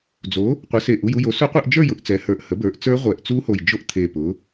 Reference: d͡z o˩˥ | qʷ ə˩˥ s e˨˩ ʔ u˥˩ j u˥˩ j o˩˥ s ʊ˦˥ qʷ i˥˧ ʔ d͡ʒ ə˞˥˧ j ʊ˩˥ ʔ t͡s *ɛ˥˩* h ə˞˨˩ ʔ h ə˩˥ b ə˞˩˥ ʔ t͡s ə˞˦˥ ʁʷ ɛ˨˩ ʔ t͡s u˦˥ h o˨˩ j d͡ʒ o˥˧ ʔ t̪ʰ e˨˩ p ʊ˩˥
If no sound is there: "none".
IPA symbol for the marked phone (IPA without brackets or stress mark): ɛ˩˥